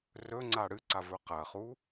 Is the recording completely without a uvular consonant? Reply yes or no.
no